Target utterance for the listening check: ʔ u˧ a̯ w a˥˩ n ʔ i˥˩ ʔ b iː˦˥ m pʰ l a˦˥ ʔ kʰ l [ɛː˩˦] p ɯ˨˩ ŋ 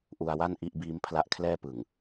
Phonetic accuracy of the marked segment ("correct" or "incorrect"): incorrect